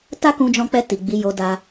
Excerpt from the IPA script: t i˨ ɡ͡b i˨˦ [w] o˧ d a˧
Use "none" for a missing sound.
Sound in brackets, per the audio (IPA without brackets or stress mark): j